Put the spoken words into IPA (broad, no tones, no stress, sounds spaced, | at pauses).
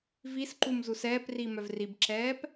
v i s ǃ u m z u s ɛː p r i m œ v r i b ǁ ɛː p